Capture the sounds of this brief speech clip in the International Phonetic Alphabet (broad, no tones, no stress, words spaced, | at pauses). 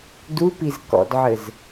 dupiz kɔ̰dʕɘz